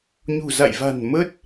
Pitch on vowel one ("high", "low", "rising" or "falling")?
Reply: low